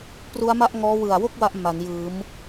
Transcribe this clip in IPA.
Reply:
p r u˦˥ a̯ m a˥˩ ʔ ŋ ɔː˦˥ w ɯ˨˩ a̯ w o˥˩ k̚ w a˦˥ ʔ m a˩˦ n j ɯː˩˦ m

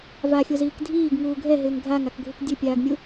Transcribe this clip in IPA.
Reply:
v a xʲ o z iː k dʱ iː ɡ ŋ uː ɡʱ ɛ ɦ ɪː ŋ ɡʱ a ŋ a k ɡʱ u k dʲ ɘ pʲ aː ɡ mʲ u

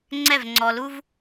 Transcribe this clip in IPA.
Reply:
ŋ͡ǀ ɛ˦˨ v ŋ͡ǀ ɔ˨ l u˧ v

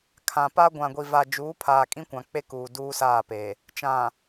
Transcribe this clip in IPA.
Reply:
kʰ ã˨ p a˦ ɡʷ ã˨ ɡʷ i˨ v a˨ d͡ʒ uː˨˦ pʰ aː˨ kʼ ĩ˦ kʷ ã˨ k͡p e˦ k uː˨ d uː˦ s aː˦˨ p e˨ | t͡ʃ ã˨

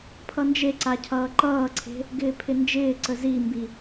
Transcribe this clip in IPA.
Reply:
pʰ ʌ n d͡ʒ e ǀ a cʰ ʌː ǃ ʌː ǀʰ e̤ | ɡ ɪː pʰ ɪ n d͡ʒ ɪː ǀ ə z i m b i

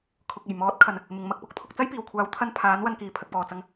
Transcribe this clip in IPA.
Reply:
kʰ ʊ˨ k̚ e˨˩ j m ɔː˨˥ t̚ kʰ ɐ˨˩ n | m ɪ˨ ŋ m ɐ˧ k̚ p ʊ˨ k̚ t̪ʰ ʊ˧ k̚ t͡s ɐ˥ j p iː˨˩ w kʷʰ aː˨˥ w t̪ʰ ɐ˧ n pʰ aː˨˥ n w ɐ˧ n k iː˨˩ pʰ ɐ˨ k̚ p ɔː˨˩ t͡s ɐ˧ ŋ

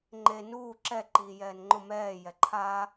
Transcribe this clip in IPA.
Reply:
ŋ͡ǃ e n uː ǁ ɛ ǃ iː j ɛː n ŋ͡ǃ ʊ m ɛː j ɛ ǃʰ aː

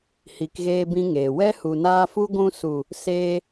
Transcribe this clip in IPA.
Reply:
h i˧ k ɣ eː˦ b ĩ˦ ŋ eː˨ w ɛ˦ h u˨ n aː˧ f u˦ ɡʷ ũ˧ s u˨ | s eː˧

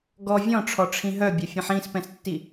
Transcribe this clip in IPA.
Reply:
ɡ ɔ vʲ ɔ̃ ʈ͡ʂʰ ɔ ʈ͡ʂʰ ĩ ɦ œ bʲ œ fʲ ɛ̃ ħ ĩ s p ɛ̃ s tː i

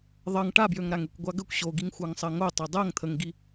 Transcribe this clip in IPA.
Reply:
ðˤ ʌ ŋ ʈ a b j ø ŋ ɾ a ŋ e kʷ ɡʷ a ɡ ə kʷ ɕ o ɡ i ŋ xʷ a ŋ sˤ ɜ ŋ o tˤ ɜ dˤ ɜ ŋ t̪ʰ ə ŋ ɡ i

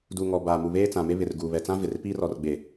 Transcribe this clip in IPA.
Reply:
d u˨ ŋ ɔ˨ b a˨ m u˨ β eː˦ t͡s ã˨ m e˦ β ɪ˨ r ɡ uː˨ β ɛ˨ t͡s ã˦ v ɪ˨ r p i˦ r ɔ˨ r ɡ͡b e˨

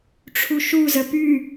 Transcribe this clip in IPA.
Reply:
ʈ͡ʂʰ u ʃ u z ə p y

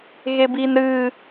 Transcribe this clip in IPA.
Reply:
ɣ e b i n ɾ ɨ

